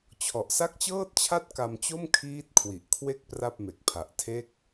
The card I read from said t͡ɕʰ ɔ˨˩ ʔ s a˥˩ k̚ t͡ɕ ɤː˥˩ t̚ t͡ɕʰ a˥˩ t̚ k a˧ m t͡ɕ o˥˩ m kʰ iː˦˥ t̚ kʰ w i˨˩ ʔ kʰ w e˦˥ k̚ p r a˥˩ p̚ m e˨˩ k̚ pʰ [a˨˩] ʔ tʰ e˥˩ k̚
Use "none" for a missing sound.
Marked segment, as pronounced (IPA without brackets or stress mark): a˨˩